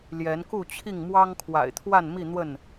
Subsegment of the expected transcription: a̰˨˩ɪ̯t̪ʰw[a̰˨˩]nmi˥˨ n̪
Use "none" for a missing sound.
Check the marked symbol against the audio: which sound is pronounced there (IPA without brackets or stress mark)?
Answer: a˥˨